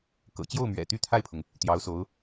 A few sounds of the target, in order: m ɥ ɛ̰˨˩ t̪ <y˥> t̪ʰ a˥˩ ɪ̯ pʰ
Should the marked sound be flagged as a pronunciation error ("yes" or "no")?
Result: no